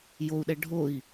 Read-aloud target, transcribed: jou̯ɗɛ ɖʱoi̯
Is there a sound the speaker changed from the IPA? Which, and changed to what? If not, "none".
none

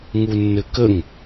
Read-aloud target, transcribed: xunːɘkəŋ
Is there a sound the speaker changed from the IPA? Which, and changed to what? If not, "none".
x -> ŋ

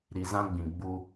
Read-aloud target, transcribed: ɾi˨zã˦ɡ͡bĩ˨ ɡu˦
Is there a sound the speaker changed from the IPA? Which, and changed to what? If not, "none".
ɡ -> ɡ͡b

